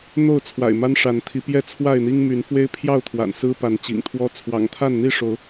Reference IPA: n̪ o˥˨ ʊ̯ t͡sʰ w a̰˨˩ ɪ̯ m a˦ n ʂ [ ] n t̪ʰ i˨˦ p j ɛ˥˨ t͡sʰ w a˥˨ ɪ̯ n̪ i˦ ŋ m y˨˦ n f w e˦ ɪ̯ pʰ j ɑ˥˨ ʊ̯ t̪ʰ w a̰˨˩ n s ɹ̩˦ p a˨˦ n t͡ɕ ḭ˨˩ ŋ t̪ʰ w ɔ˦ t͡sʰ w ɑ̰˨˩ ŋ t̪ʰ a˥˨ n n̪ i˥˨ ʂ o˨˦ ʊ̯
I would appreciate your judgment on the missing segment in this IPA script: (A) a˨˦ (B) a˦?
A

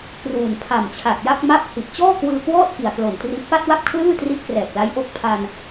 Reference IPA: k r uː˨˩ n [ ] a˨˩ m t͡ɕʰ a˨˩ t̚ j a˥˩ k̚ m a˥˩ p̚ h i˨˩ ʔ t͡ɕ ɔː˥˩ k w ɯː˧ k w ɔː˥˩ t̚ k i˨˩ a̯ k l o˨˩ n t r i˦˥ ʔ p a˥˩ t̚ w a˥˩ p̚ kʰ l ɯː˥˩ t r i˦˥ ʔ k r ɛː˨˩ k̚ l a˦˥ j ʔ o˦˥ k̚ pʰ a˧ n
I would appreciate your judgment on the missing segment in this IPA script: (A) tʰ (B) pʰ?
B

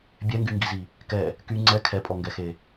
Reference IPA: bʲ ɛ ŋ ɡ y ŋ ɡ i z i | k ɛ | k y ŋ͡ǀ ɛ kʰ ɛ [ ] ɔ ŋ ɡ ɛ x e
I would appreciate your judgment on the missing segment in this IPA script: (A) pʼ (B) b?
A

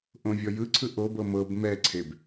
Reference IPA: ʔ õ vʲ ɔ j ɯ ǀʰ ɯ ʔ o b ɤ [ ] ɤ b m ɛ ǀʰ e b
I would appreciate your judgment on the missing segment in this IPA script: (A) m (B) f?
A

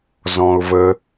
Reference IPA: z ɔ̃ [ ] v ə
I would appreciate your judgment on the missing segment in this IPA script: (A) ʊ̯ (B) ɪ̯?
A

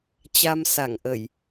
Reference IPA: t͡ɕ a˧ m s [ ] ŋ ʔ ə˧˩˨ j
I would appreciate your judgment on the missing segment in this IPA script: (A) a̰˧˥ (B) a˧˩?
B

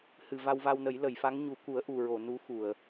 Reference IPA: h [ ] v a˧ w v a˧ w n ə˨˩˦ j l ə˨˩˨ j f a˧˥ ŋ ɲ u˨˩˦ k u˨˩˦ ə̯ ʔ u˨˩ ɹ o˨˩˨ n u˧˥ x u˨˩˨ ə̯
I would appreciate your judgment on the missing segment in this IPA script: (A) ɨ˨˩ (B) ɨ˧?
A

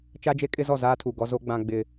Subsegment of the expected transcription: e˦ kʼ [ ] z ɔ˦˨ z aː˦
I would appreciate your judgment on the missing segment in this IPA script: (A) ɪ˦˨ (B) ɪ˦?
B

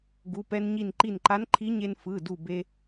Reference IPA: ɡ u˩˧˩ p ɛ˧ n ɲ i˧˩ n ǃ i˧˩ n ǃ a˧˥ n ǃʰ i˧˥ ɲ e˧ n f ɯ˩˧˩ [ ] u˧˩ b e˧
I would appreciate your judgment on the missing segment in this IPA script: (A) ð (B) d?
B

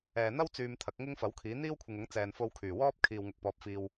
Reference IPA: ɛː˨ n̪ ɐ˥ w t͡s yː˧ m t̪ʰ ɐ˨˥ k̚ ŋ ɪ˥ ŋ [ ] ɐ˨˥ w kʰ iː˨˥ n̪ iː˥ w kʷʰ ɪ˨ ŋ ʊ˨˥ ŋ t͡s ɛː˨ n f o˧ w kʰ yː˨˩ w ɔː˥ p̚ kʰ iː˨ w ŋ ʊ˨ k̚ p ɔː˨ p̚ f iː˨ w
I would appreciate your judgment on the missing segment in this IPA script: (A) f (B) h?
A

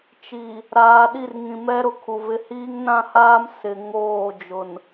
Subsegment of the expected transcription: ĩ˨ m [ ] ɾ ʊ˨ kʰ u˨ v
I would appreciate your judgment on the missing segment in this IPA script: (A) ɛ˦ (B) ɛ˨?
A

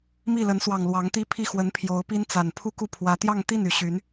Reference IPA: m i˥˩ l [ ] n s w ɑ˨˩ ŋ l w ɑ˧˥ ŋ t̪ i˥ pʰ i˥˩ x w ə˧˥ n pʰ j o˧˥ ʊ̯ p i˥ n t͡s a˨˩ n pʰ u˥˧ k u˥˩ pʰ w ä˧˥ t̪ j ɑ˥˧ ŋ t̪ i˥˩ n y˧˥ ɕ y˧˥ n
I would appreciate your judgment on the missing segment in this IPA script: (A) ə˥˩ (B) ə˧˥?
B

